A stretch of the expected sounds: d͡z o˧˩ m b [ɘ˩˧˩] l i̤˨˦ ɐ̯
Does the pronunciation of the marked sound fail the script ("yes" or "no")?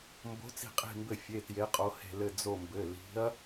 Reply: no